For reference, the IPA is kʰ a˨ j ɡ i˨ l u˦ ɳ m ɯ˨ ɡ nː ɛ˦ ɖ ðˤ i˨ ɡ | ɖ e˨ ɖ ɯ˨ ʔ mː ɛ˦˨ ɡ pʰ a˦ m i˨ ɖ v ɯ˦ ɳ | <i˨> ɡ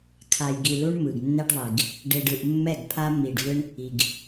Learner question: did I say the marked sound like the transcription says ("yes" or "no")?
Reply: yes